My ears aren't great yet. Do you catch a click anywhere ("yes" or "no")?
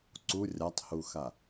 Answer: yes